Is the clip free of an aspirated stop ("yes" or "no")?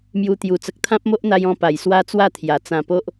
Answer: no